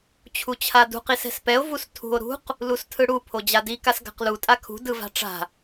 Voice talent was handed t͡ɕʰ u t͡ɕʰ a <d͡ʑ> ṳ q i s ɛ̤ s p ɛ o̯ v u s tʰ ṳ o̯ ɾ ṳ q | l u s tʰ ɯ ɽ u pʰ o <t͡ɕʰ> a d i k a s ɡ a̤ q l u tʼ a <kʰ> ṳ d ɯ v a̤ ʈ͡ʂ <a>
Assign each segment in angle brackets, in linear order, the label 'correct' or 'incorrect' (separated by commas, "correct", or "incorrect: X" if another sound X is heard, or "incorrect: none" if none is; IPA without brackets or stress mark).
incorrect: d, incorrect: d͡ʑ, correct, incorrect: a̤